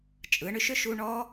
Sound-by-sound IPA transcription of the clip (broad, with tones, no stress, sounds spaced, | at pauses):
t͡ʃʼ ɯ˨˥ ɳ ʏ˧ ʃ ʏ˥˨ ʃ u˧ ɳ ɔ˦˥